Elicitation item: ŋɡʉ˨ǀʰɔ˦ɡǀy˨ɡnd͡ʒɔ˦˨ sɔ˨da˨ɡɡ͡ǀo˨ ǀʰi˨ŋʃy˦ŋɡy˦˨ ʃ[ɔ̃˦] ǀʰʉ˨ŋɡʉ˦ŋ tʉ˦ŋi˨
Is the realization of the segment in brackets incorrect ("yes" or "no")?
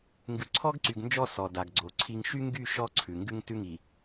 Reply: yes